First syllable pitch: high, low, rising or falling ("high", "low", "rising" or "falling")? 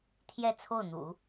falling